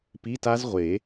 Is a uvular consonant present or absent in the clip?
present